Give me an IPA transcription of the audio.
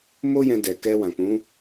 m o˦ j ɛ̃˧ d ɛ˨ k ɛ˧ w ã˨ k͡p ũ˨˦

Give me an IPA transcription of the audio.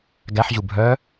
ɡ æ ħ ʑ u bʱ œ

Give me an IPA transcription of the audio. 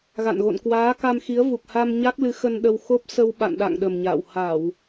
ɣ a̰˧˨ n ɣ o̰˧˨ n k w aː˨˦ k a˧ m x i˨˦ ə̯ v u˨˩ k̚ h a˧ m ɲ a˦˥ k̚ l ɨ˨˦ x ə˧ n ɗ ə˧ w x o˦˥ p̚ s ə˧ w ɓ a̰˧˨ n ɗ a̰˧˨ ŋ ɗ ə˨˩ m ɲ a̰ː˧˨ w h a˧˩˨ w

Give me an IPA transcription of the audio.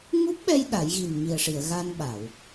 ŋ u˦˥ p̚ ɓ ɛ˧ j ɗ a˨˩˦ j ɣ i˨˩ n m i˨˩ ə̯ ʂ i˨˩˨ ə̯ ɣ a˧ n ɓ a˨˩˨ w

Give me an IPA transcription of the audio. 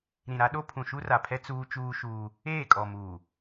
ɾ ĩ˨ ɾ a˦ ɗ o˦ pʰ ũ˨ ʃ u˦ r a˨ pʰ ɛ˦ t͡s uː˦ t͡ʃ uː˦ ʃ uː˦ | eː˦˨ kʼ ɔ˨ m uː˨

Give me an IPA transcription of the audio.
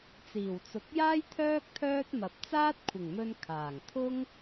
t͡s iː˨˩ w t͡s ʊ˨ k̚ j aː˥ j t̪ʰ œː˥ k̚ t̪ʰ œː˥ t̚ m ɐ˨ p̚ t͡s aː˥ t̚ kʷʰ ɪ˨˩ ŋ m ɵ˧ n kʰ aː˨˩ ŋ t̪ʰ ʊ˥ ŋ

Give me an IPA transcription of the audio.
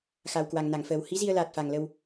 x a˨˩ w k w a˨˩ ŋ n a˧˩ ŋ f əː˨˩ w h i˨˦ z i˧ ə̯ l aː˨˩ t̚ f a˨˩ ŋ l ə˧ w

